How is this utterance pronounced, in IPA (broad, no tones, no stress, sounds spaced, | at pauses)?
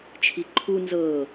t͡ʃʰ i ǃʰ u n z ɤː